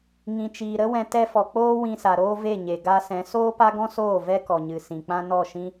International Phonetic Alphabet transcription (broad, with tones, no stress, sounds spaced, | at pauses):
ŋ ĩ˨ t͡ʃ iː˨ ɾ ə˦ w ɛ̃˧ t ɛ˧ f ɔ˨ k͡p oː˦ w ĩ˧ s a˨ ɾ oː˦ v e˦˨ ɲ e˨ ɡ a˧ s ɛ̃˨˦ s oː˦ p a˦ ɡ ɔ̃˦ s oː˦˨ v ɛ˦ k ɔ˨ ɲ ɨ˨ s ĩ˨ k͡p ã˦ n ɔ˦˨ ʃ ĩ˦